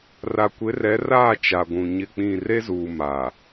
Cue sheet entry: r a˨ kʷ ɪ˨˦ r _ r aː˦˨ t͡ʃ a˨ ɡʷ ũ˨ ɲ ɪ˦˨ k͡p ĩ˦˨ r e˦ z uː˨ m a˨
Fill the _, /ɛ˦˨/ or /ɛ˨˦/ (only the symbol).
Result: ɛ˨˦